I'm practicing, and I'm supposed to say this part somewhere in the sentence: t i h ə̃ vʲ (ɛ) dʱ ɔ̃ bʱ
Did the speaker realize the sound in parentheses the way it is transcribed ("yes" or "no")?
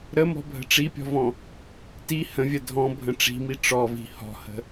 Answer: no